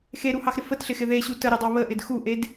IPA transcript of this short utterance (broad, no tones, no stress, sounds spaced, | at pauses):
x e ɾ u h ɑ x ɾ ɪ f ə t ɬ ɪ x ɪ ð e ɕ u t ə ɾ e dˤ ɑ β ə ʔ ɪ d x u ʔ e d